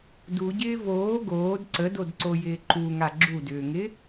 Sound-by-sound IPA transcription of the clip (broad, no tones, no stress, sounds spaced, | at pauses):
d u ɟ ɪː v oː ɡ oː d ǀ ə d o d ǀ o j ɪː ǃ u ŋ a ɡ͡ǁ u d ʏː ŋ ɪ